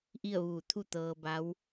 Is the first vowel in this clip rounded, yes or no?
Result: no